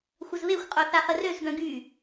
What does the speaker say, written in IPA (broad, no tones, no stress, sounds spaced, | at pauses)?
xʷ ə z β e xʷ qʼ o θ a χ ə r ø z ɡ œ̃ ɡ y